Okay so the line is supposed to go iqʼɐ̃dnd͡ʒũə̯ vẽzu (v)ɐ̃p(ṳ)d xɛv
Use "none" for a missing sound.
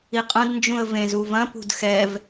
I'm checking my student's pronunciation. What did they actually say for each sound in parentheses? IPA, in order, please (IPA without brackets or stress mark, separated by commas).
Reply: v, ṳ